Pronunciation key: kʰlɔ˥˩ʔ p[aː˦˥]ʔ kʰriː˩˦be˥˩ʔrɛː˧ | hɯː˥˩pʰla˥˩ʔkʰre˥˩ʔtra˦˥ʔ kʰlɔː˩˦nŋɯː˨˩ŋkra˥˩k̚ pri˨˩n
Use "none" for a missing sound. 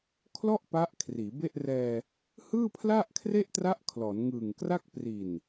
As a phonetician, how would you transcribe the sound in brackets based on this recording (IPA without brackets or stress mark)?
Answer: a˦˥